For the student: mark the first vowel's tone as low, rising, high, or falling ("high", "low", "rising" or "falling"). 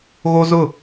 high